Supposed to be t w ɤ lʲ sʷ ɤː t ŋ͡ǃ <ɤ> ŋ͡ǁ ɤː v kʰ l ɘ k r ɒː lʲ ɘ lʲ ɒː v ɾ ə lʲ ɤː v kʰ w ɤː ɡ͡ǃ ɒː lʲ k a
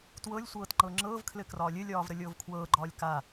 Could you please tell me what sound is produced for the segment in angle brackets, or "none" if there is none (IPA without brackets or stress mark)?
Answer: ɤ